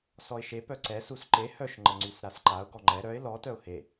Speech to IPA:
s ɔ ɪ̯ ʃ e p œ ǀ ɛ s u s ǃ e h œ ʃ ŋ͡ǃ ə ŋ͡ǀ y s ɾ a s ǃ a ʊ̯ ɡ ɔ ŋ͡ǃ ɛ ɾ œ ɪ̯ l ɔ t œ ʊ̯ h e

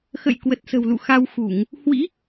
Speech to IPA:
x ə̰˧˨ j k w ə˨˩ t̚ s ə̤˨˩ w l ṵ˧˨ x a˧ w x u˧˩˨ ŋ | h w ḭ˧˥

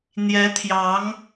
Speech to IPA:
n̪ j ɛ˧˥ t̪ʰ j ɑ˧˥ ŋ

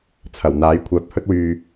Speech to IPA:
t͡sʰ ɐ˨˩ w n̪ aː˨˥ j kʷʰ œː˨ p̚ h ɵ˥ t̚ w yː˧

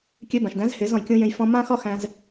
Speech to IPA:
kʲ ø˧ b ã˨ ʃ d æ̃˨˦ z h e˨˦ z ɔ̃˨ j kʲ ũ˧ j ẽ˧ j f ɔ̃˧ m ã˦ x ɒ˦ x æ̃˦ z

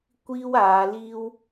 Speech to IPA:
kʷ iː˥ w aː˨˧ l iː˥ w

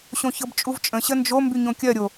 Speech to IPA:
ɕ õ ç ɤ b t͡ʃʼ u v t͡ʃʼ ə̃ ɕ ə n d͡ʒ o m b y ɲ õ kʲ ɜ ɾʲ o

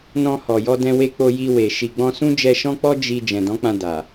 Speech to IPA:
n ɔ̃˧ h ɔ˨ j ɔ˧ d ɛ̃˧ w e˧ k͡p o˧ j i˧ w e˨ ʃ i˨ ɡ͡b ɔ̃˧ s ũ˦ d͡ʒ ɛ˧ ʃ ɔ̃˦ k͡p ɔ˦ d͡ʒ i˧ d͡ʒ ɛ̃˨ d ɔ̃˨˦ k͡p ã˧ d a˨

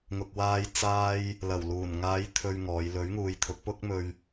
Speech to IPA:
ŋ ʊ˨ k̚ w aː˧ j t͡s aː˧ j | l ɐ˨˩ w l uː˨˩ n ŋ aː˨˧ j t̪ʰ ɵ˨ ɥ ŋ ɔː˨˧ j l ɵ˨˥ ɥ ŋ uː˨ j t̪ʰ ʊ˨˥ k̚ p ʊ˥ k̚ m ɵ˧ ɥ

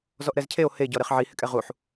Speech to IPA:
z ɔ ʔ ɾ ɛ z cʰ e o̯ h e ɟ ɔ ɾ e χ ʕ i h ɪ kʼ ɛ ʁ u ħ

